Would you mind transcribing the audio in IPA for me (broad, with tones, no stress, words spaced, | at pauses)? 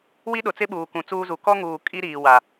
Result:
wi˦ɗʊ˨t͡sɪ˦ɓuː˨ kũ˨t͡suː˦zu˨ kɔ˦ŋuː˨ kʼi˦ɾiː˨wa˨